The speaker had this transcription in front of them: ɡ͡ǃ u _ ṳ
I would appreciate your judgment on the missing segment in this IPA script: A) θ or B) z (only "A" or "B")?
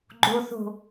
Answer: A